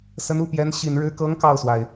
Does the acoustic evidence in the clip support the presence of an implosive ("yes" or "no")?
no